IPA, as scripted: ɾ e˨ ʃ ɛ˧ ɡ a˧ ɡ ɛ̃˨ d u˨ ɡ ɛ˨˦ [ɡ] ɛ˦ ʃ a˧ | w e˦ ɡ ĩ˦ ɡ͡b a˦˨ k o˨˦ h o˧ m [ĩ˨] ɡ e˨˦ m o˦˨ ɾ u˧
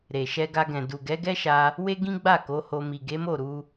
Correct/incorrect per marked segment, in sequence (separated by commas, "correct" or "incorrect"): correct, incorrect